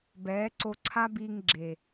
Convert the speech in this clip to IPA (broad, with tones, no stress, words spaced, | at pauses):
bɛː˨˦ǀo˧ ǀʰa˦biː˧ŋ ɡ͡ǁe˨